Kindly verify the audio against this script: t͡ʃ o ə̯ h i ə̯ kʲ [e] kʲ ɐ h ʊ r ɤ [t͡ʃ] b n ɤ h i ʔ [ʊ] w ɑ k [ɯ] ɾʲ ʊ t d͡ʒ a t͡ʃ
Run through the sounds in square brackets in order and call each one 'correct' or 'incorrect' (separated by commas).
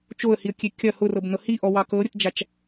correct, incorrect, incorrect, incorrect